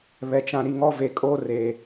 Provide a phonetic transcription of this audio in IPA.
β ɛ˨ t͡ʃ ã˨ ɾ i˨ ŋ ɔ˦ v e˨ kʼ oː˦ r eː˨

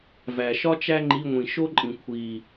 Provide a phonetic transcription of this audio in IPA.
v æ˨˩ ʃ ɒ˥ t͡ʃ æ˥ ŋ͡ǃ i˧˥˧ ŋʷ ĩ˨˩ ʃ o˥ ǃʼ ĩ˨˩ kʷʰ i˨˩

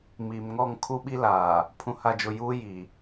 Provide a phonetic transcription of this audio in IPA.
m iː˨ m ŋ ɔ˦˨ ŋ kʰ u˦ ɓ i˦ l aː˨ | pʰ ũ˨ h a˨ d͡ʒ ʊ˨ j uː˦ j iː˨

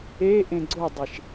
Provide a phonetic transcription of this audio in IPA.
e ʔ ẽ ɡ͡ǀ o dˤ i ʃ

